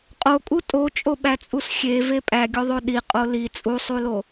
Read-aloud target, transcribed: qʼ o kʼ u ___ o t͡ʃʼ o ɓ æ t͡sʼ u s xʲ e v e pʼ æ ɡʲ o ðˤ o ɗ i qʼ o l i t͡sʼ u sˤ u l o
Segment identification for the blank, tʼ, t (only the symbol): tʼ